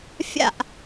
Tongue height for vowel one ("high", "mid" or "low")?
low